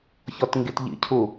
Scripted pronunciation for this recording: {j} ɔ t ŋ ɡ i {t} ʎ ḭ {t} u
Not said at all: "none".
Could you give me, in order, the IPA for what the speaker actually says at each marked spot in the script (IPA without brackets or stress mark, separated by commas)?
ç, t, cʰ